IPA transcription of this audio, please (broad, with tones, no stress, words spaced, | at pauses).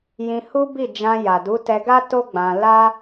jĩ˧hu˦bi˦˨d͡ʒã˧ ja˨du˨˦ tɛ˧ɡa˦ to˦ɡ͡bã˧ la˦